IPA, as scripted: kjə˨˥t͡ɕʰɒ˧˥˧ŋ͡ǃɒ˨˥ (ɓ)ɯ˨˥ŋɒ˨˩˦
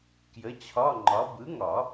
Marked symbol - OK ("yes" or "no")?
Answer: no